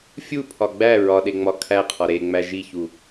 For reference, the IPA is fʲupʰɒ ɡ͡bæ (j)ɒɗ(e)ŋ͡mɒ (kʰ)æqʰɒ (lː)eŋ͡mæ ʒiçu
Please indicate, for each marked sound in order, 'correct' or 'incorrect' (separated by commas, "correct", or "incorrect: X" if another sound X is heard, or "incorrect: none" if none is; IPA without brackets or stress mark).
incorrect: ɹ, correct, correct, incorrect: ɾ